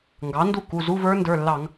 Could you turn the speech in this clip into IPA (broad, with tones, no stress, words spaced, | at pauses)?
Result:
ŋɡɑ˩˥ndu˥˩ ku˩˧˩zu˧˥˧və˞˦˥ ndə˞˩˧˩lːɑ˧˩˧ŋ